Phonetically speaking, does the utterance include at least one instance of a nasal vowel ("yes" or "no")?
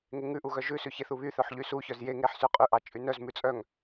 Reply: no